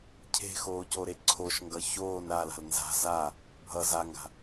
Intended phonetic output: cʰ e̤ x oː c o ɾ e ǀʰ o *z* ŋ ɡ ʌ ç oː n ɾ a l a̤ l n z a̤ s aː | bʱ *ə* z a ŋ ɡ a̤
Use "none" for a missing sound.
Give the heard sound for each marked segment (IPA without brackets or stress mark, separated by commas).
ʃ, ʌ